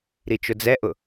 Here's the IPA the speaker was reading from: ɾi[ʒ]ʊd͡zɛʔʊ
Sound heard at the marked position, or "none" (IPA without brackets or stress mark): t͡ʃ